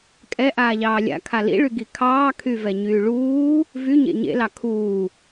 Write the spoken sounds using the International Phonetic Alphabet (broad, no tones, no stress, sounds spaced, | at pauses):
kʼ ɛ ʔ aː ʎ ɑː lʲ a̰ kʰ a l ḭ ɭ y ɡ i kʰ ɑː kʰ y v ɛ ɲ yː ɭ uː | v y ɲ ḛ ɲ ḛ l ɑ kʰ uː